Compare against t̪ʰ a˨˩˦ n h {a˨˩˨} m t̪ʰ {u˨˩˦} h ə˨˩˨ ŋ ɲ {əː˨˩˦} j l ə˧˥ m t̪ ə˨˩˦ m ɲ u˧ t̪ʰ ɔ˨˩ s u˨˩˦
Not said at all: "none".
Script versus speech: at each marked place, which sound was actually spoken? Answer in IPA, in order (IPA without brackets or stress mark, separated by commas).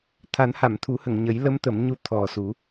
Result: a˨˩˨, u˨˩˦, ə˨˩˦